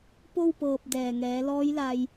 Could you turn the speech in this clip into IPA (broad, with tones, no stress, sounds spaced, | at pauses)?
p o˥˨ w p ɤː˧˩ p̚ d ɛː˧˩ ŋ ɛː˩˧ l ɔː˧˥ j l a˧ j